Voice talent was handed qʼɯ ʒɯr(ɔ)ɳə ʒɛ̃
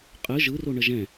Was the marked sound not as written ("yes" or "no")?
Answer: yes